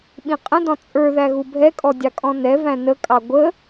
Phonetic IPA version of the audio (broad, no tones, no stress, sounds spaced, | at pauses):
ɓ ĩ qʼ ə̃ d ɔ̃ t͡sʼ ə˞ ð æ ɣ u bʱ ɛ kʼ ɔ dʲ ɑ kʼ ɔ̃ n ɛ v æ̃ n ə kʼ ɑ ɡʷ ə